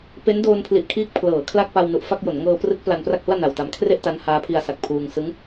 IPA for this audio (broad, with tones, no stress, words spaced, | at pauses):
pe˦˥ndoː˧npʰli˨˩ʔkʰiː˦˥k̚ pʰlɤː˩˦kʰla˥˩k̚ pa˧wnu˨˩ʔfa˥˩k̚jo˩˦n ŋɤː˧prɯ˦˥k̚ pla˧npra˥˩k̚ hu˥˩a̯na˨˩wta˧m kʰre˥˩ʔ ta˦˥nhaː˦˥pʰi˧a̯ sa˨˩k̚pʰuː˧ŋ sɯ˦˥ŋ